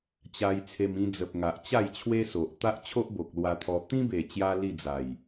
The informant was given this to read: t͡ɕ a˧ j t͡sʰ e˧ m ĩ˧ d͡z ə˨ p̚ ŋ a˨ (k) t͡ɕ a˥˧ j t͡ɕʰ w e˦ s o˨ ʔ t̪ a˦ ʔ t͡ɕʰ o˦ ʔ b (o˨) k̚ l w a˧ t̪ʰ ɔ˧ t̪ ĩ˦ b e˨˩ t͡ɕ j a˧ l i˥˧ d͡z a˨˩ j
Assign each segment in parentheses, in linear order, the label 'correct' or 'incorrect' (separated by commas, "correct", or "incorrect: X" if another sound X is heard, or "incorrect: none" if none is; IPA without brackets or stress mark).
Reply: incorrect: ʔ, correct